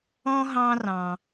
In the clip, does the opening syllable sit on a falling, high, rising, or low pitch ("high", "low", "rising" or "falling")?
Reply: high